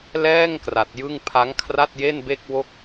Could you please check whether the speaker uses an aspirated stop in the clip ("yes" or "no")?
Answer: yes